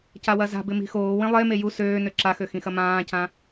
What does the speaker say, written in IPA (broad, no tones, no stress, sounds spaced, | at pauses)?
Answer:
c a w ɐ z a̤ b ɪ m i̤ x oː w ĩ lˠ e m e j u s øː n ø ǁ a x ø x ĩ x ɐ m ãː c ã